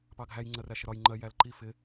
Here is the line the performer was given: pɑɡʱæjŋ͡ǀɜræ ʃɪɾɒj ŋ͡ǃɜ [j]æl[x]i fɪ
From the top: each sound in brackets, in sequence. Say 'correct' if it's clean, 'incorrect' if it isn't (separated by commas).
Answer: correct, incorrect